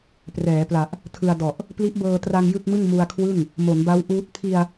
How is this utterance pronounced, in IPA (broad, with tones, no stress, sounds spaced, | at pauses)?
p r ɛː˩˦ p l a˨˩ ʔ | tʰ ɯ˧ a̯ d ɔ˨˩ ʔ | p l i˦˥ ʔ b ɤː˧ t r a˧ ŋ j ɯ˥˩ k̚ m ɯ˥˩ ŋ m u˧ a̯ kʰ w ɯ˥˩ ŋ | m o˩˦ n b a˦˥ w ʔ uː˦˥ t̚ pʰ i˧ a̯